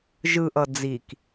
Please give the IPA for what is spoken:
ʒ ɯ ʔ ʌ d͡z i k

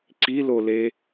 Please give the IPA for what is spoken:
ǀ i l o l e

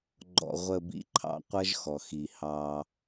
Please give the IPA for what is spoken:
ɡ͡ǃ ɔ̰˨ ʁʷ ə˨ b ḭ˨ ǃʰ ɑ̰˨ qʷ ʌ˦ ʒ x ɔ˨ x i˨ h ɑ˦

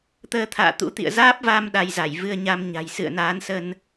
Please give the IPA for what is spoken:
t̪ əː˧ t̪ʰ a̰ː˧˨ t̪ ṵ˧˥ t̪ ḭ˧˨ ə̯ z aː˦˥ p̚ v aː˧ m ɗ a˧ j z a˧˩ j v ɨ˧ ə̯ ɲ a˧ m ɲ a̤˨˩ j s ɨ̰˧˨ ə̯ n aː˨˦ n s ə˧ n

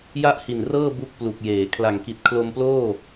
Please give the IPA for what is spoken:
j a˥˩ ʔ h i˨˩ n r ɤː˥˩ b u˥˩ k̚ p l u˨˩ k̚ j eː˩˦ kʰ l a˨˩ ŋ k i˨˩ t̚ kʰ l o˧ m p l oː˥˩

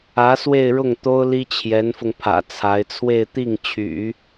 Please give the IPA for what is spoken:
ä˧˥ s w e˥˧ ɪ̯ ɻ ʊ˥˩ ŋ t̪ o˥ ʊ̯ l i˥ t͡ɕʰ j ɛ˧˥ n f ʊ˧ ŋ pʰ ä̰˨˩ t͡sʰ a˧˥ ɪ̯ t͡sʰ w e˥˧ ɪ̯ t̪ i˥˩ ŋ t͡ɕʰ y̰˨˩˦

